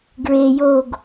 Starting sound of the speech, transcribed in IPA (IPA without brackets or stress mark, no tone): ɡ